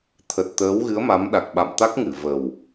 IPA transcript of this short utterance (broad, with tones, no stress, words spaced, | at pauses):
t̪ʰə˨˩t̚t̪əː˨˦wɣɨ˨˦ə̯ ma˨˦mɗa˨˩k̚ɓa̰˧˨m t̪a˦˥k̚ŋɨ˧˩ və˨˩w